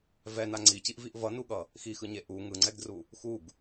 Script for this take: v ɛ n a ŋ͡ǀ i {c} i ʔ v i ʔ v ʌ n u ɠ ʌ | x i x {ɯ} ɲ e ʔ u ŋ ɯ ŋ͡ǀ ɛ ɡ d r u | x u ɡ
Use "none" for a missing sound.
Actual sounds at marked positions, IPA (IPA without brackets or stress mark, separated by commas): c, ɯ